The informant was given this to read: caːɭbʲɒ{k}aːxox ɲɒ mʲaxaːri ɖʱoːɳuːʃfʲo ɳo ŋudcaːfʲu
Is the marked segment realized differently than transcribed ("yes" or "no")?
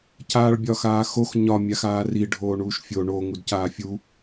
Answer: yes